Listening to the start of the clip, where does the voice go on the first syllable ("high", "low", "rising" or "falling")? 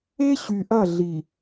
high